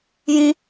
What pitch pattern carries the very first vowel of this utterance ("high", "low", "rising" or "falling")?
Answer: high